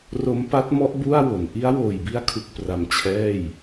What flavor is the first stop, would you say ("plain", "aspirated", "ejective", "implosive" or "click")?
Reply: plain